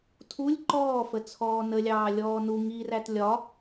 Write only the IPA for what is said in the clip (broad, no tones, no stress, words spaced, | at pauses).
tʰulʲ ǃɔːfə t͡sʰɔːnəlʲɑː lʲɔːnu ŋiræt lʲɒ